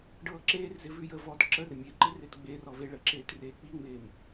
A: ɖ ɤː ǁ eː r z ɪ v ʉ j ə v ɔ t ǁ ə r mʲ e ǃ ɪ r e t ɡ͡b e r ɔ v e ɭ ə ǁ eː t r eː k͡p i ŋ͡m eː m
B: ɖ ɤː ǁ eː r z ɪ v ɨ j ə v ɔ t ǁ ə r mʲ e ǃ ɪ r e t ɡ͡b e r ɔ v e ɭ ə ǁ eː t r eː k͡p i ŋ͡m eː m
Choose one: A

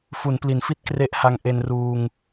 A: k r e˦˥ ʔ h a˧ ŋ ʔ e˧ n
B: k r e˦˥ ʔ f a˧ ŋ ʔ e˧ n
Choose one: A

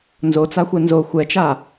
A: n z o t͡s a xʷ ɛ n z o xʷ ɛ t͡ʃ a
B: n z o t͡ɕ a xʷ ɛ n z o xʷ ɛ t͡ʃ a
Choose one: A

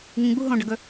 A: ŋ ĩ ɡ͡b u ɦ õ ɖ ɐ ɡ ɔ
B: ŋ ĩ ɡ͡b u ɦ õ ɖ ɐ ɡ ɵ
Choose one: B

